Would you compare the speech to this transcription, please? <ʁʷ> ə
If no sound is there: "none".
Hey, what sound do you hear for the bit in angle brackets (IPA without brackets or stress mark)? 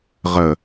ʁ